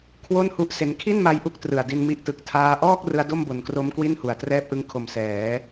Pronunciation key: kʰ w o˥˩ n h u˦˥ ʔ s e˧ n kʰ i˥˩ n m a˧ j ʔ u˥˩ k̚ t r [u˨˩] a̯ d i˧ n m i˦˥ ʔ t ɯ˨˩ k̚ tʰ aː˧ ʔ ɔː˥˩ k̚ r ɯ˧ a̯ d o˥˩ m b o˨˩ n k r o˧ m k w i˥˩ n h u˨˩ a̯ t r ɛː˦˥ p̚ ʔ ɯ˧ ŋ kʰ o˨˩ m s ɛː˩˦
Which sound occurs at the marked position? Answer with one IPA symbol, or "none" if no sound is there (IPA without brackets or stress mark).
ɯ˨˩